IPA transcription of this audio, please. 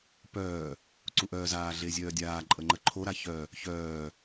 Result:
p œː | ǀ u ʔ œː z aː ɮ e zʲ œː dʲ aː ǃʼ ə ŋ͡ǃ ə ǃʰ o ɾ a ç œ | ç œː

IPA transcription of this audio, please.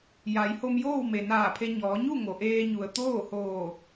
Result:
j a˩˧ j h o˧ m j oː˥˨ w m e˩ n aː˧˩ pʰ e˧ ɲ ɔː˩˧ ɲ u˥˨ ŋ o˩ ʔ eː˧ ɲ u˩ ə̯ t̪ oː˥˨ h oː˧˩

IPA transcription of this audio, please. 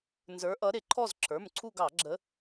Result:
n z ə˞˨˦ ʔ ʌ˨˦ ɾ ɪ˧˩˧ ǃʰ ɔ˦˨ z ǁʰ ə˞˩˧˩ m ǀʰ u˦˨ ɡ ɑ˧˩˧ ɡ͡ǁ ə˨˦

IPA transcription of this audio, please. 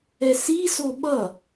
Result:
ɛ s i s o ɓ ʌ

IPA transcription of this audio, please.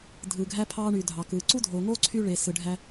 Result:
dʱ ɯː˨ ɡʱ æ˧ pʰ ɑː˧ ɳ yː˨ dʱ ɑ˨ k ɯː˨ ǀ u˦ dʱ oː˨ ŋ oː˦ ǀʰ y˧ ɭ eː˨ s ɯ˨ ɖʱ æ˧

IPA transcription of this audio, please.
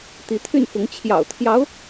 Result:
t̪ i˧˥ t̪ʰ y˥˩ n f ʊ˧˥ ŋ t͡ɕʰ j ɑ̰˨˩ ʊ̯ t̪ʰ j ɑ˧˥ ʊ̯

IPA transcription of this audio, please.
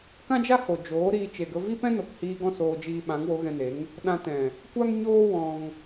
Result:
k ã˦ d͡ʒ a˦ h o˨ d͡ʒ oː˨˦ ɾ iː˧ t͡ʃ e˨ ɡ ə˧ v i˦ p ɛ̃˦ n o˨ k h iː˧ ɡ ɔ̃˦˨ s oː˧ d͡ʒ iː˧ ɓ ã˨˦ ŋ w o˨˦ ɣ ɛ̃˧ n e˨˦ ŋ | ɗ ã˧ t ɛ̃˨ | kʷ a˦ ŋ ɲ oː˦ w ɔ̃˧ ŋ

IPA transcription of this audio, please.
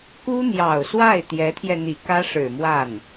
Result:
k u˥ n̪ j ɑ˨˩ ʊ̯ s w a˥˩ ɪ̯ t̪ j ɛ˧˥ t̪ʰ j ɛ˧ n̪ i˨˩ k ä˥ ʂ ɻ̩˨˩ m w a˥˩ n

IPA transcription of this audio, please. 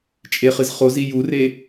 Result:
t͡ʃʼ e χ ɨ z χ o z i j u r e

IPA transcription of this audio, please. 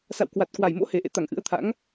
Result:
s a̰˧˨ w k w a˨˩ t̚ k w a˨˩ j m o̰˧˥ h e˨˩ ʔ ḛ˧˨ t̪ a˧˩ ŋ ʔ ɨ̰˧˥ ə̯ t̪ʰ a̰˧˥ ŋ

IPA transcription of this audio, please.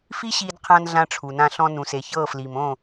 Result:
f i˦ ɕ iː˧ d qʰ ã˧ n ɮ ã˧ ʈ͡ʂʰ u˨ n ã˧ ɬ ɔ̃˧ n ũ˨ s e˨ ç ɤː˦˨ f l iː˨ m õː˦˨

